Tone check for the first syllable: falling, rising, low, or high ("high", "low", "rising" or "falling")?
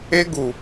high